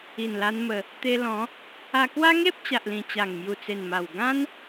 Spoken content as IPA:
i˨˩ n l a˧ n m ə˧ | t̪ e˧ l ɔ̃˨˦ | a˧ k w a˦ ŋ e˦ p̚ t͡ɕ a˨ ʔ l ĩ˨˩ t͡ɕ a˨˩ ŋ m j u˨˩ t͡s e˨˩ n m a˨˩ w ɡ ã˦ n

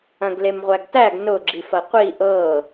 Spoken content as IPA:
ɐ̃ ɡ l e m ʁʷ æ ɡ t æ ɡ n ʊ ɡ͡ǁ i f ɐ qʷ i ʔ ɤ

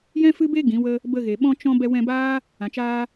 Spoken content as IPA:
j ɛ̃˦ f ɨ˦ b e˦ ɡ ĩ˨˦ w ə˦ | b ə˧ ɣ e˨ ɓ ɔ̃˦ t͡ʃ ɔ̃˦ b ɛ˧ w ɛ̃˧ b aː˦ | ã˨ t͡ʃ aː˦

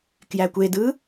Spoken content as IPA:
k j æ kʷ e d ɯ

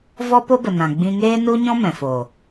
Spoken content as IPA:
v ɔ˦ p o˦ b ə˨ n ã˨ ɡ͡b ĩ˧ ŋ eː˦ n u˦ ɲ ɔ̃˦ m ɛ̃˨ f o˨

